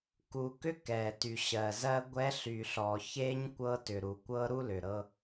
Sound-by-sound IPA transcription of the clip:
k u˨ k ʏ˦ k ɛ˨ t y˨ ɕ ɜ˨ z ɜ˦ ɡʷ ɛ˦ ɬ y˨ ɬ ɔ˨ ç e˦ ɲ kʷ ɤ˦ t ʏ˨ ɾ u˨ kʷ ɤ˦ ɾ u˦ l ʏ˨ ɾ ɤ˦

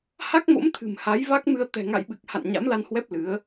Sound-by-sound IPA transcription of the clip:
h a˦˥ k̚ m o̰˧˥ m t̪ʰ ɨ̤˨˩ m h a˨˦ j v a˦˥ k̚ m ɨ˧ ə̯ t̪ ɛ̤˨˩ ŋ a̰˧˨ j ɓ ɨ˨˩ k̚ h a̰˧˨ n ɲ a̰˧˥ m l a˧ n h w ɛ˦˥ p̚ l ɨ˨˦ ə̯

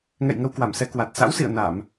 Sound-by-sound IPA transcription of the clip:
ŋ ɛ̰˧˨ j ŋ ə˧ w k w a˧˩ m s ɛ˧ k w a˨˩ t̚ s a̰˧˥ w s ḭ˧˨ ə̯ n a˧˩˨ m

